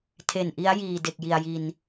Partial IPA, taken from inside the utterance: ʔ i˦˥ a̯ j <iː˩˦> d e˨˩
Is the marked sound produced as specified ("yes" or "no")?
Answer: no